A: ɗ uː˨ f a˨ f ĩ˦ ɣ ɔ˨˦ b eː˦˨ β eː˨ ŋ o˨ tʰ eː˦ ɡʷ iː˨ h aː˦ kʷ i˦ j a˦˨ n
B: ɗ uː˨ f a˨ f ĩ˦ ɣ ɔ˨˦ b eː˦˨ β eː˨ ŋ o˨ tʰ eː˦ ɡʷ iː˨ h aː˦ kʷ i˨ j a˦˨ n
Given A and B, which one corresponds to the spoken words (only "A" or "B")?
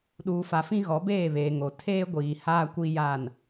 A